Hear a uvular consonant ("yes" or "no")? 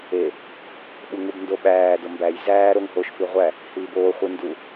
yes